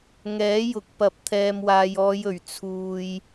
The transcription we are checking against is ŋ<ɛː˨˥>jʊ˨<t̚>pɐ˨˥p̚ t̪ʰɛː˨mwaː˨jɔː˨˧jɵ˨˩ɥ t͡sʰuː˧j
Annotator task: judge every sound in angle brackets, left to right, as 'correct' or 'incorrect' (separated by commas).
correct, incorrect